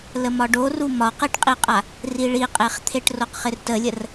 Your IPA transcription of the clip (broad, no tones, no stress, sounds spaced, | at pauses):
l ə m ɒ ɖ o r u m ɒ q i ʈ qʼ i qʼ a | r i ɭ i qʼ e χ t̪ʰ e ʈ r o q χ ɪ r t ə lʲ ə r